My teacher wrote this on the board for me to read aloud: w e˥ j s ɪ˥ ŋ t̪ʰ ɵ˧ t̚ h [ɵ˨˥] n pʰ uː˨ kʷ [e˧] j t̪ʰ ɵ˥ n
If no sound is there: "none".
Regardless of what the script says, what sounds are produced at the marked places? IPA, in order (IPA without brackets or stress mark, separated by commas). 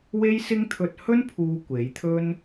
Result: ɵ˥, e˨˥